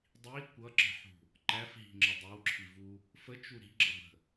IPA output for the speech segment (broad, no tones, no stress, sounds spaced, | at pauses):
dˤ i kʷ ʌ ǁ ə̤ ħ ṳ | ǃ æ f ɦ i̤ ŋ͡ǁ ə dˤ ɪ w ǁʰ i v u | f ə t͡ʃ u ɾ i̤ ɡ͡ǁ ʌ b ə̤